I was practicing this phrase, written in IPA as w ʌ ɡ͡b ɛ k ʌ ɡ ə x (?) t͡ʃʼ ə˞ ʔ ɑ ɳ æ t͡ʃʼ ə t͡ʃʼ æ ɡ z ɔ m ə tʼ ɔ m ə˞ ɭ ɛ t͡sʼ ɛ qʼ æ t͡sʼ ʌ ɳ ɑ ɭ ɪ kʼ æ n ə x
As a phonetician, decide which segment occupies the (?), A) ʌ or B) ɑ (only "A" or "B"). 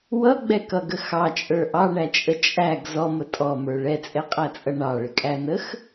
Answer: B